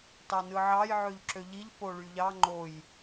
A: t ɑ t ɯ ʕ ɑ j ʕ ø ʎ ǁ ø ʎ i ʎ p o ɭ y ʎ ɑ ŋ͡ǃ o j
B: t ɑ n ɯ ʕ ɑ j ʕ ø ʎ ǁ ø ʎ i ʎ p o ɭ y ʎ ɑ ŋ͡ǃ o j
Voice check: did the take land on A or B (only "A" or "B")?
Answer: B